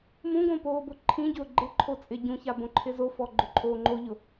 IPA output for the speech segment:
m ũ ɡ õ p oː b ʊ ǃʰ ĩ ɟ ʊː ɡ͡ǃ ɪ ǃʰ o t͡sʼ ɪ ɟ ũ ç a b õ ǃʰ ɪ z o f ɔ ɡ͡ǃ ʊ ǃʼ oː ŋ͡ǃ o ʎ ʊ

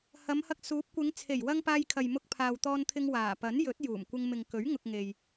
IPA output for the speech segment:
h ɐ˨˧ m h ɐ˧ k̚ s uː˨˥ p̚ kʷ ɪ˨˧ ŋ t͡sʰ e˨˩ j w ɐ˧ ŋ p aː˧ j kʰ ɐ˨ j m ʊ˧ k̚ pʰ aː˨ w t̪ ɔː˧ n t̪ʰ ɪ˧ ŋ w aː˨˩ p ɐ˨˥ n j ɵ˨˥ t̚ j uː˨˩ m kʷ ɪ˧ ŋ m ɪ˨ ŋ k ɵ˨˥ ɥ ŋ ʊ˧ k̚ ŋ e˨ j

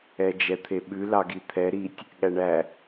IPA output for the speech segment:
ɛ d͡ʒ ɛ t̪ʰ e ɓ ʉ l ɑ ɡ i t̪ʰ ɛ ɾ i tʲ | ɠ æ ɳ æ

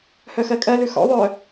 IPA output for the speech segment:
h œ x ɜ kʼ ɜ l ʉ x ɔ̰ ðˤ œ

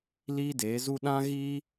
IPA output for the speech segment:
l iː˦ d eː˨˦ z u˦ ɗ ã˦ ɣ iː˦

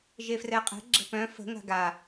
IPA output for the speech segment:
ʒ e f r ɛ qʼ ɛ̤ ɡ͡ǁ ə̤ p œ̃ f ə̤ ŋ a̤ ɡ a

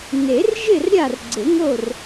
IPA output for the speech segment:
n e˨˩˦ r ʒ ɪ˥˨ r ɾʲ a˥˨ r ɡ͡ǀ ɪ˨˩˦ ŋ o˥˨ r

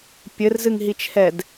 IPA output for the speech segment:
pʲ ɘ r z ɨ ŋ ɦ i t͡ʃʰ ɛ d

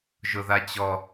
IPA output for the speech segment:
ʒ ʊ ð a t͡ɕ ɔ

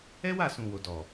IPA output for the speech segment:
ɛ˦ w a˦˨ s ũ˨ w o˨ d ɔ˨

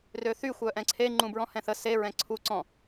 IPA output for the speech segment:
r ø θ y xʷ œ ʔ ɛ̃ ǀʰ e ŋ͡ǃ ũ b ɹ ɔ̃ h ɛ̃ θ ə s e ɹ ɛ̃ ǀʰ u ǀ ɔ̃

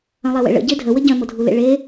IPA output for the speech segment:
œ̃ lˠ e w ḛ ɭ ə̰ ɟ e dʱ ə w ə ɟ œ̃ m o dʱ u l ḛ ɭ e

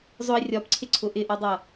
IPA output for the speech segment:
zˤ ʊ i̯ rʲ ɒ p ǀʰ ɪ ǀʰ ʊ ʔ ɪ ʔ ɒ dˤ ʌ

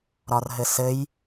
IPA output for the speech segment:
ɾ ɒ r ɦ ɘ s ɘ j

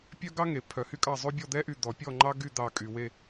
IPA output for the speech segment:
pʲ œ˥ ɡ ɑ˥ ŋ e˩ pʰ œ˨˩˦ h y˥ kʼ ɑ˥˨ zˤ ʉ˥ bʲ ɔ˥˨ d̪ ɛ˥ ʔ y˧˩ d̪ ɔ˨˩˦ pʲ ɔ˥˨ ŋ͡ǃ ɑ˥ ɡ y˥˨ d̪ ɑ˧˩ kʼ y˩ w e˧˩

